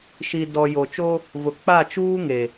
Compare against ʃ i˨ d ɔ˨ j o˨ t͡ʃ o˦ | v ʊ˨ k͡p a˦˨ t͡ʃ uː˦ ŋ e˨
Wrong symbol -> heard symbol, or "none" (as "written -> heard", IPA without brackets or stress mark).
none